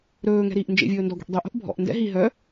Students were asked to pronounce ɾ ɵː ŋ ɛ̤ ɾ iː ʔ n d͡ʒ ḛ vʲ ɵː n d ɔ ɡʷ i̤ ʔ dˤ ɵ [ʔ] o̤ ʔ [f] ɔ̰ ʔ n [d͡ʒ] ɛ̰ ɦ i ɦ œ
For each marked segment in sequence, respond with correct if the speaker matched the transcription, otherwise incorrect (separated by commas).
correct, incorrect, incorrect